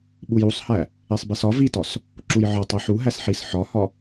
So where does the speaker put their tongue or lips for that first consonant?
lips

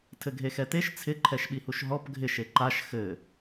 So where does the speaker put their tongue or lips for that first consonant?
tongue tip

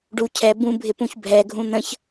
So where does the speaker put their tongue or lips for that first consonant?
retroflex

